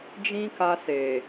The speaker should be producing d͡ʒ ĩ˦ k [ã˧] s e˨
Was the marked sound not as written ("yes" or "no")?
yes